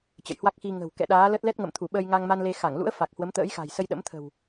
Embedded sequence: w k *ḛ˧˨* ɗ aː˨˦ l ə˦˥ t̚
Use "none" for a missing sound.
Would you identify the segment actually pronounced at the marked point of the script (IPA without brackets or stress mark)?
ɛ̰˧˨